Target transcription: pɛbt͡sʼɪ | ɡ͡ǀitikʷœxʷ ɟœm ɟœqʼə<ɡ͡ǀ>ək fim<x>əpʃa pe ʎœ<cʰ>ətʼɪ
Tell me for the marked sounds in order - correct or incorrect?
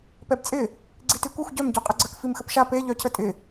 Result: correct, correct, correct

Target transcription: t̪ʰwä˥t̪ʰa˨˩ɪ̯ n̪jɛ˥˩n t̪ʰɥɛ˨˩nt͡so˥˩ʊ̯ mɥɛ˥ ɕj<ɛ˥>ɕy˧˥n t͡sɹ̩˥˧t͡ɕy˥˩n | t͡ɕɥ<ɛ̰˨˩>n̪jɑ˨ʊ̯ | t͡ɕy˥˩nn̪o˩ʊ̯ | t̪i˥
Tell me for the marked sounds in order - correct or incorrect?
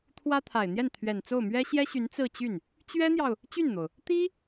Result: correct, incorrect: ɛ˥

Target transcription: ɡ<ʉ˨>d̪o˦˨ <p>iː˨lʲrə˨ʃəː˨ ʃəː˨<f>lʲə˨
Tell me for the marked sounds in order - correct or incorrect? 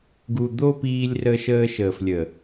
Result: incorrect: u˨, correct, correct

